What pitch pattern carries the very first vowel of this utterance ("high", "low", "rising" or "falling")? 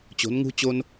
rising